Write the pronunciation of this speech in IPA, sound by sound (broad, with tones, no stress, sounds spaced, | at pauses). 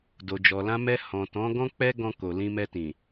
d o˨ d͡ʒ ɔ˨ l ã˧ m ɛ˧ h ɔ̃˨ t ɔ̃˨˦ ɡ ɔ̃˦ k͡p ɛ˦ ɡ ɔ̃˧ k o˨ l ĩ˧ m ɛ˧ t ĩ˨